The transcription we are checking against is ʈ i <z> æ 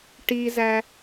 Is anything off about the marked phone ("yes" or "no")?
no